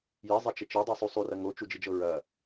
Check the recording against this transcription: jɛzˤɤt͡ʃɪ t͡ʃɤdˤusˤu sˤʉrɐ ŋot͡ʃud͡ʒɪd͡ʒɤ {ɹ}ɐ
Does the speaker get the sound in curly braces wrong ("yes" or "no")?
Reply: no